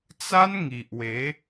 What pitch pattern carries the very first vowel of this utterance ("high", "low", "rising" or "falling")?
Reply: high